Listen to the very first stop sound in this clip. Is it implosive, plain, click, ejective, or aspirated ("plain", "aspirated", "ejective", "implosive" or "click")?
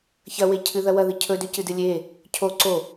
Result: aspirated